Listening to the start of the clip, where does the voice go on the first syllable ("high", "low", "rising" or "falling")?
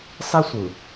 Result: high